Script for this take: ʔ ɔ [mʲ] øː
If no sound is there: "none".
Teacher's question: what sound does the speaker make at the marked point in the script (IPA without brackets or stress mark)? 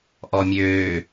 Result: mʲ